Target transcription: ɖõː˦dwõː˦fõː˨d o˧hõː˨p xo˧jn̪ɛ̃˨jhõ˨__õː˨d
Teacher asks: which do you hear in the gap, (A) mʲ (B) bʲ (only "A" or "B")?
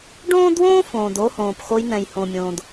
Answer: A